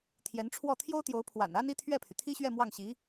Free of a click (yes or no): yes